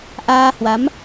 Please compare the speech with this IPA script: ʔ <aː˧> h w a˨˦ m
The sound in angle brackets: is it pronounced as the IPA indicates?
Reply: yes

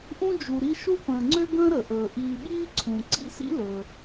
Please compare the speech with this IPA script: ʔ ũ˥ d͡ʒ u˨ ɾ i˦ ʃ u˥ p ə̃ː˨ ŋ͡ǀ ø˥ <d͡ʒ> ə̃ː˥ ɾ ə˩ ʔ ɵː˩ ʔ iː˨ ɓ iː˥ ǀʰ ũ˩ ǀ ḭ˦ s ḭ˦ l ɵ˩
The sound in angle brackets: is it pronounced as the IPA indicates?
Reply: no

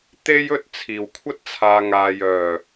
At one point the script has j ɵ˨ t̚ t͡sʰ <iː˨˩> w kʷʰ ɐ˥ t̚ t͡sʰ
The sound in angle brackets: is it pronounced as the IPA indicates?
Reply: yes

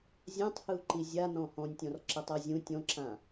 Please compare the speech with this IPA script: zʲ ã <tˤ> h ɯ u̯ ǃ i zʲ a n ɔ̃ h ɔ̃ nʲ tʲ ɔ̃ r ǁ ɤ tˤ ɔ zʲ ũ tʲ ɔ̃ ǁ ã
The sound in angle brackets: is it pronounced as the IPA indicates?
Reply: yes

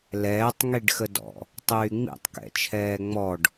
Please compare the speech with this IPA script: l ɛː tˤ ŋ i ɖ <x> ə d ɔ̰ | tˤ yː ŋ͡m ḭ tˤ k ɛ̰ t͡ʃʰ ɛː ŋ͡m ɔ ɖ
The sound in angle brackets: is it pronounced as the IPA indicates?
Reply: yes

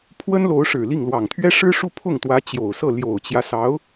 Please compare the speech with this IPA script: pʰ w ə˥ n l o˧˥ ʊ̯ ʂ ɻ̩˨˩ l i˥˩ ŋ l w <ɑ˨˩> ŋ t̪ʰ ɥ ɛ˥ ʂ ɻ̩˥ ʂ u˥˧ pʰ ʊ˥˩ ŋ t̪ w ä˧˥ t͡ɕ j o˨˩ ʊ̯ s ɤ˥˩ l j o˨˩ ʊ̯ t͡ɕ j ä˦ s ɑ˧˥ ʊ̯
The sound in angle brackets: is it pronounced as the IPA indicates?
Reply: yes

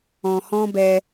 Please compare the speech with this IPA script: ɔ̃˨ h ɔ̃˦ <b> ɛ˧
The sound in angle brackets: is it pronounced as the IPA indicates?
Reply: yes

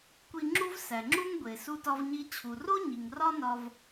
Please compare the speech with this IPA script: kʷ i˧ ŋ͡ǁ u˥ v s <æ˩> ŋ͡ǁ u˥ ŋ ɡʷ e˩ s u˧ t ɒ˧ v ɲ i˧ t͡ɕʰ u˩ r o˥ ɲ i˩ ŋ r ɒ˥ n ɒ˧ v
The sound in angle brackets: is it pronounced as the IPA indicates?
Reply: yes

